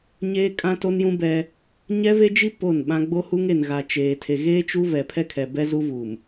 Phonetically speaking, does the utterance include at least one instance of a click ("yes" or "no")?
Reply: no